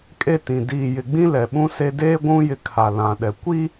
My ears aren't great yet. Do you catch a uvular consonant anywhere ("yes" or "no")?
no